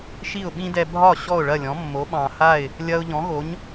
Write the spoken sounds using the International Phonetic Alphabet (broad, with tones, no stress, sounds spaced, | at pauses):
ʃ i˥˩ ʊ̯ ɓ ĩ˥ d ɛ˧ bʱ ɒ˥˩ ɕ ɔ˥˩ ʊ̯ ɭ ɐ˥˩ lʲ ɔ̃˩˥ mː o˩˥ ɓ ɑ̃˩ h a˥˩ ɪ̯ | lʲ ɐ˧ ʊ̯ ʎ ɔ̃˩˥ ɣ o˩˥ ɲ